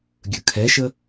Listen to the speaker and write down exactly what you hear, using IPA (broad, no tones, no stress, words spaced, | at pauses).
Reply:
ɡʲɵkʰɛʃə